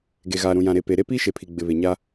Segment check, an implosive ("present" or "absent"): absent